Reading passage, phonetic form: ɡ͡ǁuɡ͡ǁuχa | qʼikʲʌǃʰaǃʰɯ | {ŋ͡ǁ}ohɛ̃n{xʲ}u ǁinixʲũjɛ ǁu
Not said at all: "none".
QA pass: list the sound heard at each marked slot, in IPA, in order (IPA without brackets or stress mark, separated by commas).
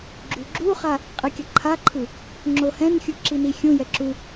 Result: ŋ͡ǁ, xʲ